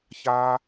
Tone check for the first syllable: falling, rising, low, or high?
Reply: high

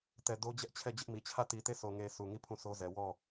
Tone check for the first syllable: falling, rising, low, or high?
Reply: low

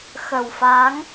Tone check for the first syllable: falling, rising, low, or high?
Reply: low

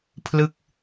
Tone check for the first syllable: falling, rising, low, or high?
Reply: falling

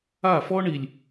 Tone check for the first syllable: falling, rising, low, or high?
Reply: falling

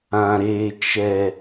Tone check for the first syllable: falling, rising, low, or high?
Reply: low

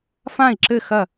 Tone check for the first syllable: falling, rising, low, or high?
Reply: falling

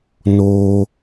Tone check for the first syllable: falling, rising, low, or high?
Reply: high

